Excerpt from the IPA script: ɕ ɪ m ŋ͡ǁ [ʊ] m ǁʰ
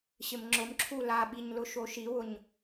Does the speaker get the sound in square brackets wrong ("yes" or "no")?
no